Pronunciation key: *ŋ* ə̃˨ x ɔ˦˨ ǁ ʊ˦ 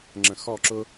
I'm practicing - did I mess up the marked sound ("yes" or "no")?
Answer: yes